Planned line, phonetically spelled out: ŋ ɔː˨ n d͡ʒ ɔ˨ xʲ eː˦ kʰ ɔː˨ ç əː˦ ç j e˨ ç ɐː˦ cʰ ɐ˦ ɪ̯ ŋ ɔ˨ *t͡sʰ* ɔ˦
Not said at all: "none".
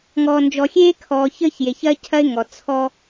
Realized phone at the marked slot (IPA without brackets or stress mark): t͡sʰ